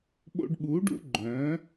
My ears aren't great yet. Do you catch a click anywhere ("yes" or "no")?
yes